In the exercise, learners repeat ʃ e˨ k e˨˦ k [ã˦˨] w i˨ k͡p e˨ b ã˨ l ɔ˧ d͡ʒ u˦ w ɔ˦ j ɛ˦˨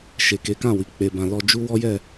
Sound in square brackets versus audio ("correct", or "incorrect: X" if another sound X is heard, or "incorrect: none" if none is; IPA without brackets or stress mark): correct